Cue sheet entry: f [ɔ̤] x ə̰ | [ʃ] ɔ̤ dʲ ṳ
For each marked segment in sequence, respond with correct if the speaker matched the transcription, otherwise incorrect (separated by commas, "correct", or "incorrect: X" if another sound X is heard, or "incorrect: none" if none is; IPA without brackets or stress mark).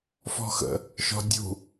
correct, correct